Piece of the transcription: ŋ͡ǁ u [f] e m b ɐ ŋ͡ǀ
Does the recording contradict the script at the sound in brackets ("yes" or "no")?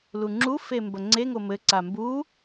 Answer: no